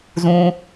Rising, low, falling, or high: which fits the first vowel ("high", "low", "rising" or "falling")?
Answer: high